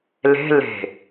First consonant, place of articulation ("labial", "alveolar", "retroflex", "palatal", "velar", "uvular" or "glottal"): alveolar